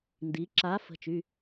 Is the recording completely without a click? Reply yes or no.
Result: no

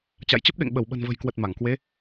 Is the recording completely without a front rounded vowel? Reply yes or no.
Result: yes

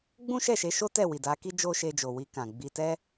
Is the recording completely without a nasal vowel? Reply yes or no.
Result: no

